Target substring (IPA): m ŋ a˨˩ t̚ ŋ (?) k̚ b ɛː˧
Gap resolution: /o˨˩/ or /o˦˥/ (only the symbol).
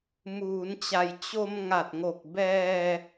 o˨˩